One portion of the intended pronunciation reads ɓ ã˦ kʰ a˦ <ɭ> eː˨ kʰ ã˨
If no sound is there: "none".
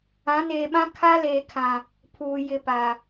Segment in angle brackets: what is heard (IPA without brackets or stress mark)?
l